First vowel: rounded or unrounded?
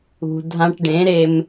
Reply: rounded